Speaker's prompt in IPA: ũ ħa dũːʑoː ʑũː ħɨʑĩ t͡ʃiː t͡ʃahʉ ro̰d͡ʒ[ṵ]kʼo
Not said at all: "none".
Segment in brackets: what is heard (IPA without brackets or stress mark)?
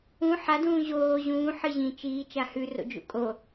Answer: ṵ